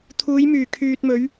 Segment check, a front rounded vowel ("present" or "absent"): present